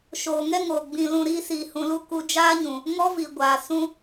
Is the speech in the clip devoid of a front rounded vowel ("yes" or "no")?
yes